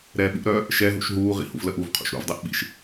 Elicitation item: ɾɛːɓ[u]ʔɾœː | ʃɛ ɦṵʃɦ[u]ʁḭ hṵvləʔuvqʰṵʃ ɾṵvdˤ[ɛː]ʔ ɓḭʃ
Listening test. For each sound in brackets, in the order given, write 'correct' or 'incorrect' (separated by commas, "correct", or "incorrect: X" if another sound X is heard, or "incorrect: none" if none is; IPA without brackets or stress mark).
incorrect: ṵ, incorrect: uː, incorrect: ɛ